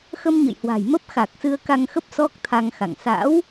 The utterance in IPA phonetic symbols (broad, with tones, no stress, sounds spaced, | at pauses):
x ə˧ m ɲ ə̰˧˨ j h w a̤˨˩ j m ə˦˥ p̚ x a˨˩ k̚ s ɨ˧ ə̯ k a˧ ŋ x ə˦˥ p̚ s ɔ˦˥ k̚ t̪ʰ a˧ ŋ x a̰˧˨ ŋ s a̰˧˥ w